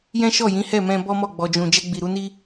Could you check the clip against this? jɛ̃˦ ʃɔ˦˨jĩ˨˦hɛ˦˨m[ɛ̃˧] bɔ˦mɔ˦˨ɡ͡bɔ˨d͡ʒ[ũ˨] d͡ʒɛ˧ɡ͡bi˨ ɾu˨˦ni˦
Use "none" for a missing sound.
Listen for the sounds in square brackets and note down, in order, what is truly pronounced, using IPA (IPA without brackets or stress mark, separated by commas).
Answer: ɛ̃˧, ũ˨